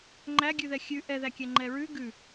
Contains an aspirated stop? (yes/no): no